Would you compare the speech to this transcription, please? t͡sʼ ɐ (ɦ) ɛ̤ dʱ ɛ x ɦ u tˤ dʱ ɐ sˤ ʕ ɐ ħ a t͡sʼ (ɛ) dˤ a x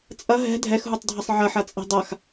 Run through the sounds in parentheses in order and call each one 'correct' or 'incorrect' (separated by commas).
correct, incorrect